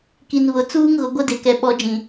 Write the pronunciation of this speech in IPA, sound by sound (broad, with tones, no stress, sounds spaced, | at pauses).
k i˨ n β ʊ˨ t͡s uː˦ ŋ ɣ ʊ˨ ɡʷ ɛ˦ d e˨ k ɛ˨ ɓ ɔ˨˦ d͡ʒ ĩ˨